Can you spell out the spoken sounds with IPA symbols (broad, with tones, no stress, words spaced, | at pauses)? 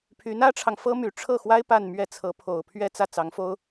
pʰy˧˥nä˥ʈ͡ʂʰɑ˨ŋfɤ˥ my˨˩ʈ͡ʂʰɤ˥˩xwa˥ɪ̯ pa˥˧nmɥɛ˥˩t͡sʰɤ˧˥ pʰo˨˩ʊ̯pʰɥɛ˥˧ t͡sä˥˩ t͡sɑ˧˥ŋfo˥ʊ̯